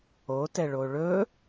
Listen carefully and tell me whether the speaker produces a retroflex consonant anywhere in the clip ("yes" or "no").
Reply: yes